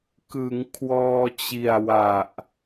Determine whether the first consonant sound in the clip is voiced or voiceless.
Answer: voiceless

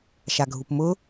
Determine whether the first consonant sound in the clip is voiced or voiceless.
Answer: voiceless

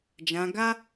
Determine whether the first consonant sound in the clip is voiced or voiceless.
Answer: voiced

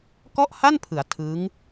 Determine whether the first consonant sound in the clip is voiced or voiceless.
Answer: voiceless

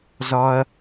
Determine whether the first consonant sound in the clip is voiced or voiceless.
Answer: voiced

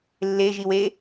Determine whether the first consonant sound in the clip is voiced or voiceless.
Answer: voiced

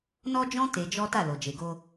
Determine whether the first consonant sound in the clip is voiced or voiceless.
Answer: voiced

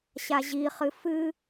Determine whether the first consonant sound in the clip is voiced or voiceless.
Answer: voiceless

